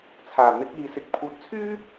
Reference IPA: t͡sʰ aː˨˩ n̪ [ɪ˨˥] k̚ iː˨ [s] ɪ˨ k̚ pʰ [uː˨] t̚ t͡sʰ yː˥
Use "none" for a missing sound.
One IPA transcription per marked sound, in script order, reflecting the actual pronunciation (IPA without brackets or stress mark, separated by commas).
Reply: ɪ˨˥, s, uː˨˥